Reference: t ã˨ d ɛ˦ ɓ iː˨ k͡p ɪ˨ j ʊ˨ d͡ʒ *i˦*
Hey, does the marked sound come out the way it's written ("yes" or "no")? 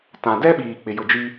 yes